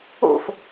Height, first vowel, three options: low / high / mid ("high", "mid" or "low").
mid